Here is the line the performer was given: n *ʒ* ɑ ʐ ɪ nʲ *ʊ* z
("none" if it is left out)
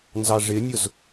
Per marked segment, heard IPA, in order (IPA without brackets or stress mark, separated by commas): z, ʊ